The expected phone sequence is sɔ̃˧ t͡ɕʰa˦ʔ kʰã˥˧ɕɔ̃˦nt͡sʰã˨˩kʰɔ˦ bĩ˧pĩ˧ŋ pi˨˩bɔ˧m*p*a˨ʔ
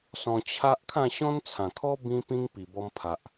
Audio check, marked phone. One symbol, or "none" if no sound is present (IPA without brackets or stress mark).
pʰ